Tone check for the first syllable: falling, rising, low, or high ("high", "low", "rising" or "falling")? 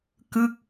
falling